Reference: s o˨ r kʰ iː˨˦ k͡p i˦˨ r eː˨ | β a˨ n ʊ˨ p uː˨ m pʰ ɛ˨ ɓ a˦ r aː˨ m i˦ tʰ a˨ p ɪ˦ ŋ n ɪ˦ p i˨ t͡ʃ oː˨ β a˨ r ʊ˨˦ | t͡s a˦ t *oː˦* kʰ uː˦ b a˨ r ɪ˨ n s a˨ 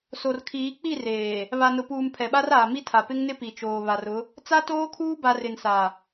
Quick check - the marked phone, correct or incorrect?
correct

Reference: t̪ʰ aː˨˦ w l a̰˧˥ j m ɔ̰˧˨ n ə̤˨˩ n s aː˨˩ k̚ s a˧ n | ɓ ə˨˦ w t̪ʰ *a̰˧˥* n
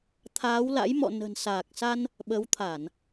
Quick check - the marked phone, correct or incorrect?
incorrect: a˧˩˨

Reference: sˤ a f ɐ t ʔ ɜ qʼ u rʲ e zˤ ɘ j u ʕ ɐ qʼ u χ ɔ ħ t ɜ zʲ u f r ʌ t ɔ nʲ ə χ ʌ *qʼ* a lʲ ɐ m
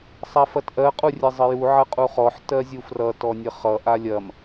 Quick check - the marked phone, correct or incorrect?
incorrect: ʔ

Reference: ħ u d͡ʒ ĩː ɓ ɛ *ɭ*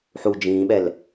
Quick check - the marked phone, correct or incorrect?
incorrect: l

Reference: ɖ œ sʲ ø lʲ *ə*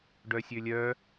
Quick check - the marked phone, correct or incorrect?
incorrect: œ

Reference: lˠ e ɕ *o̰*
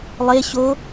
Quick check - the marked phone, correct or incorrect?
incorrect: o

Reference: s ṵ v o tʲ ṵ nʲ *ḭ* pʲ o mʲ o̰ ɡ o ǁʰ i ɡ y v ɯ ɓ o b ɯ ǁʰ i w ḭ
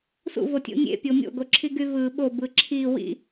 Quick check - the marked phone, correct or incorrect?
incorrect: ḛ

